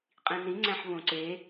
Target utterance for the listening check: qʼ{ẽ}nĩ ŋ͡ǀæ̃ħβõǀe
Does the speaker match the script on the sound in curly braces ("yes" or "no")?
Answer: no